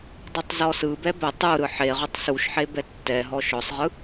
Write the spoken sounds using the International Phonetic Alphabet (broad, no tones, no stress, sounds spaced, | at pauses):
dˤ ɛ tˤ z ɔ s ɯ b ɛ b ɛ tˤ u ɾ ɯ ħ e ʁ u tˤ s u ʃ ħ e b ɛ tː ɛ ɦ ɔ ʃ ɔ sˤ ʁ ɯ